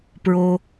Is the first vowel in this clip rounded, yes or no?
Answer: yes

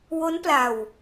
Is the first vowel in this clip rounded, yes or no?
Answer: yes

